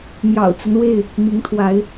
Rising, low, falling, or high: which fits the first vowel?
low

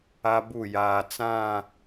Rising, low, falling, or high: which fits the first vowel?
high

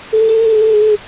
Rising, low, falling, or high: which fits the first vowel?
high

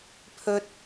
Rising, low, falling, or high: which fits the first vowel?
high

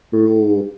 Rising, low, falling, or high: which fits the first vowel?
low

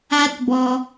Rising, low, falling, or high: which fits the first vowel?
high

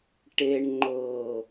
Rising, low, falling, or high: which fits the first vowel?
low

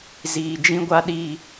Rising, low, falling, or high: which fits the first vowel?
low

